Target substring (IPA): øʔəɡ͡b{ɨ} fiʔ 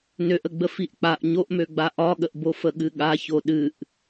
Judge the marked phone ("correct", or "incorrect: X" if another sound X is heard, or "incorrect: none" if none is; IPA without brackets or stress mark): incorrect: ə